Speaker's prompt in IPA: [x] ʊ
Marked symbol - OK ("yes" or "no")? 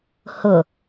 no